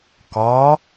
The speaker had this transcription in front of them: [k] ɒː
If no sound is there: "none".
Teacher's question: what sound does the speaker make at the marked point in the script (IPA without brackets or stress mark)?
k